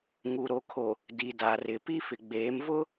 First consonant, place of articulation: velar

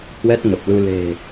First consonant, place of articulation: glottal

